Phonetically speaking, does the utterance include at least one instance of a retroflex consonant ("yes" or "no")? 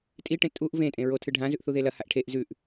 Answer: yes